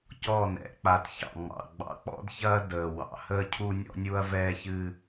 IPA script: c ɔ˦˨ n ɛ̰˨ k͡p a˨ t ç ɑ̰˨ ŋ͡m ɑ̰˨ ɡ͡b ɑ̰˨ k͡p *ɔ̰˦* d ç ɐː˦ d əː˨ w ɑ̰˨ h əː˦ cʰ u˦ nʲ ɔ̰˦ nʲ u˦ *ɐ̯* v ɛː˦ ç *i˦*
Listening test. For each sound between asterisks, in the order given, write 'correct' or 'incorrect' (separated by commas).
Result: correct, correct, incorrect